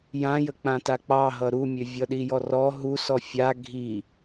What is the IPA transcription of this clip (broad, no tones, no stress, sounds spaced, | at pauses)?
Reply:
j ã j ə k͡p ã t a k͡p ɑ ɦ ʌ ɾ u mʲ ø vʲ ʌ ɗ i j ɔ r ɔ ɦ u s ɔ fʲ a ɡʱ i